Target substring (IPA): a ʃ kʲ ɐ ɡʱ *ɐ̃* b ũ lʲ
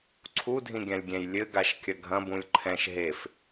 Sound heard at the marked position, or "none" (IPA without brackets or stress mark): ɐ̃